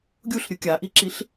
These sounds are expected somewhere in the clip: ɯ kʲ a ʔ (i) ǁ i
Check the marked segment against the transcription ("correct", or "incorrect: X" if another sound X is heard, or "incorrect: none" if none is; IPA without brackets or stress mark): correct